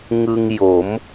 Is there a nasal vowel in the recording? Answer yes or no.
no